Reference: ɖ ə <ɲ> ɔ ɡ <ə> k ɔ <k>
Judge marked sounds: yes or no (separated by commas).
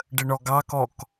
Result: no, no, yes